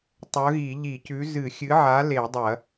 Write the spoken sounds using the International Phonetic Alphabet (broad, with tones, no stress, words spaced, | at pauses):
tˤɵ˨˥ɣi˧˩˧ʎi˧˩˧cʉ˨˥ zɨ˧˩˧ xʲɨ˨˥ʕa˨˥ le˧˩˧dˤɐ˧˩˧